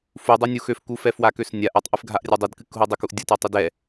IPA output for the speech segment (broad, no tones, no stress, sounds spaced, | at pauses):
f u dˤ ø nʲ u x ø f k u f ɛ f w a k ø s nʲ a ʔ a tˤ ʔ ɨ f ɡʱ a ʔ rʲ a dˤ ɨ d k ɨ k ɦ u dˤ ə k u ʔ dʲ ə t a tˤ ɨ d ɛ